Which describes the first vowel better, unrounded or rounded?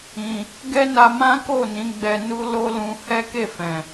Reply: unrounded